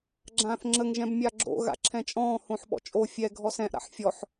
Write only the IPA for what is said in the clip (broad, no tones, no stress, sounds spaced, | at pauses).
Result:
ɡ͡ǁ ãː θ ŋ͡ǁ ə ŋ ʒ ɛ̃ b mʲ a ɡ͡ǁ o̰ ɣ a̰ ǁʰ ɛ̃ t͡ʃʼ ɔ̃ː h õ ħ ɓ ɔ̰ t͡ʃʼ o fʲ ɛ ɡʱ ɔ s ɛ̃ ʔ ɾ a̰ ħ fʲ ɔ ħ